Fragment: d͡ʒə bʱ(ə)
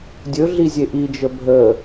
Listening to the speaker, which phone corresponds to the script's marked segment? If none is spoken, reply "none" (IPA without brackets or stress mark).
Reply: ə